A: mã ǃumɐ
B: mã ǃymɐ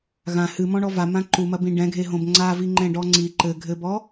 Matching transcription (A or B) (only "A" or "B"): A